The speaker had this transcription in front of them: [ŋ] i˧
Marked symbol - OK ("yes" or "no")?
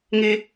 yes